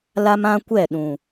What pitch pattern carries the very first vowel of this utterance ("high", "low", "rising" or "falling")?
high